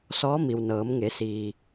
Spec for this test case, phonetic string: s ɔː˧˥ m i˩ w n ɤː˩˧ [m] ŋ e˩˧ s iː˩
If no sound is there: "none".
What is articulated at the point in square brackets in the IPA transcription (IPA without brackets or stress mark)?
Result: m